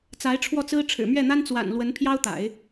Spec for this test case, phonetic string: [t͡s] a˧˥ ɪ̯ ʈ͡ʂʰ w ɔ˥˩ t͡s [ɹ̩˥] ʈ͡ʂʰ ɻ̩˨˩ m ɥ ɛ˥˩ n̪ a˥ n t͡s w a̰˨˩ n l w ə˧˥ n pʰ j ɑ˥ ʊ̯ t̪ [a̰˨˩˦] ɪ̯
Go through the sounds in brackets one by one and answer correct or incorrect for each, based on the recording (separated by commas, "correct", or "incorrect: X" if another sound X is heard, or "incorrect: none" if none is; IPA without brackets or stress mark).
correct, correct, correct